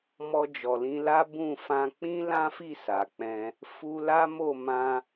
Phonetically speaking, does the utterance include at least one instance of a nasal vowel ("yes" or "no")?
yes